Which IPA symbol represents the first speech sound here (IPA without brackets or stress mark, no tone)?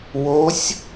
w